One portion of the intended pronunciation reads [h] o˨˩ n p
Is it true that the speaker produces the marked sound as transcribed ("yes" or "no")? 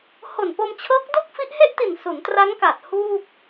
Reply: yes